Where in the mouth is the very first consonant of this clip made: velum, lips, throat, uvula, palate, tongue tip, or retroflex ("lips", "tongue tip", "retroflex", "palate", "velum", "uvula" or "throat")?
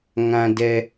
velum